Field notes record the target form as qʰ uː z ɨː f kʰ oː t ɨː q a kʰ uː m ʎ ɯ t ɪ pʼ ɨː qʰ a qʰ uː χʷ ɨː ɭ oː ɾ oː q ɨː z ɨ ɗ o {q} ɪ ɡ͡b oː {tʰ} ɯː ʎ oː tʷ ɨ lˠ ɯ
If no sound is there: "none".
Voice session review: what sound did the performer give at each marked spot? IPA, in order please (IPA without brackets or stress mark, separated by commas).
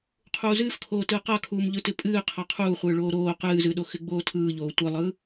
x, tʰ